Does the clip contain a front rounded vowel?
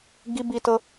no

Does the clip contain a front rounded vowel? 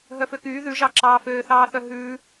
yes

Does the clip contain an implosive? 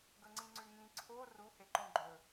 no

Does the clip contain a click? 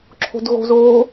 yes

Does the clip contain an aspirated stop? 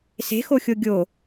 no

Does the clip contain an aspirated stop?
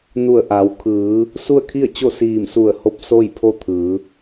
yes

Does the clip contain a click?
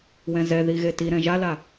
no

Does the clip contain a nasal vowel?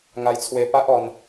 no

